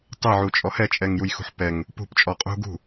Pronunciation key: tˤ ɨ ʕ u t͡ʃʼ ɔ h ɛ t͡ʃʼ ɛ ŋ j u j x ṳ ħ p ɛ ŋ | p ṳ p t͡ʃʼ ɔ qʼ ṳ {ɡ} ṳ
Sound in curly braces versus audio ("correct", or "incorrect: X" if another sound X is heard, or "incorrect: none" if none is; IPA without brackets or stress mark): correct